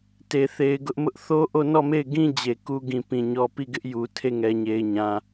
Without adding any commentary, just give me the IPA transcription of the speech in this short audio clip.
t e˨ θ e˨ ɪ̯ ɡ ʊ˦ ʔ m ʊ˦ ʔ θ o˦ ʔ o˦˨ n ɔ˦˨ m e˦˨ ɪ̯ ɡ ĩ˦ d͡ʑ e˨ k u˦ ɡ ĩ˨ p ĩ˨ ɲ ɔ˨ p i˦˨ ɡ ɪ˦ ʔ j u˨ tʰ e˦˨ ŋ ɛ˨ ɲ e˨ ɪ̯ ɲ ã˨

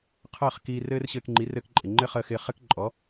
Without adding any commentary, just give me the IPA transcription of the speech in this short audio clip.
qʰ əː˥˩ χ k iː˧ r ɘː˥ r ɕ ɘː˧ k ŋ͡ǃ i˩˥ r ɘ˧ k ǃʼ ɪ˩ ŋ͡ǃ ɘ˥ χ əː˧ x ɪː˧ χ ɘ˥ k ǃʼ ɔ˩˥

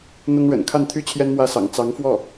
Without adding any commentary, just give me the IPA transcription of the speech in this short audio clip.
n̪ ʊ˥ ŋ ɻ ə̰˨˩ n kʰ a˥˩ n t̪ʰ y˥ t͡ɕʰ j ɛ˥ n m w ä˥˩ s ɑ̰˨˩ ŋ t͡s ɑ˧˥ ŋ f w ɔ˥˩

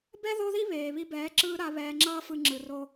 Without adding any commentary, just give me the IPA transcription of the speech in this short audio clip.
b ɛ˦ ð o˦ ð i˦ β eː˨ β i˧ b ɛː˨˦ ǁ ɯː˧ ɾ a˧ β ɛː˧ ŋ͡ǁ ʌː˦ f ɯ˧ ŋ͡ǁ ɯ˨ r o˧

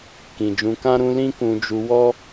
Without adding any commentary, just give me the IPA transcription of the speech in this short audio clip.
k ĩ˨ d͡ʒ ũ˧ k ã˦ ɾ ũ˦ l ĩ˦ k ũ˧ d͡ʒ u˧ w ɔ˦

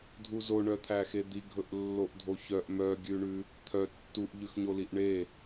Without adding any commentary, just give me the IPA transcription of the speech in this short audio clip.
dʱ u z o ɳ œ t̪ʰ æ x e d̪ i ɡʱ ɵ ʔ lː o ʔ dʱ o ç œ ʔ m œ ɡʲ ʉ ɳ ʉ | t̪ʰ œ tː u ʔ ʎ ʉ x ɲ o l i ʔ ɳ e

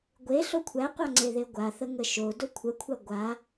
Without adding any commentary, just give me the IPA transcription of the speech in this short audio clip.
ɡʷ e ɬ o kʷʰ æ qʷ a ŋ͡ǀ e ð e ɡʷ a θ ə ŋ ə ʃ o d o kʷʰ ə kʷʰ a ɡʷ a

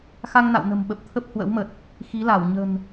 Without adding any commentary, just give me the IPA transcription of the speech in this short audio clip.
x a˧ ŋ n a̰˧˨ w n ə̤˨˩ m ɓ ə˨˩ p̚ t̪ʰ ə˦˥ p̚ h w ə̰˧˥ w m ə˨˩ t̚ | x i˨˦ l a˧˩ w ɲ ə̤˨˩ n

